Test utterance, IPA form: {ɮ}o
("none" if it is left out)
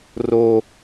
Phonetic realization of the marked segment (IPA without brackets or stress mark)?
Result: r